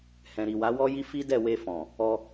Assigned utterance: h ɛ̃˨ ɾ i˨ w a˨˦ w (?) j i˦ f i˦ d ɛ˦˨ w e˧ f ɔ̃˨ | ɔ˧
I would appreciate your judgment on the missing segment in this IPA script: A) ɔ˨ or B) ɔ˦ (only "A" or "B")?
B